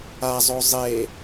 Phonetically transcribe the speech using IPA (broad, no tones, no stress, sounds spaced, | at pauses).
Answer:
a zˤ o zˤ e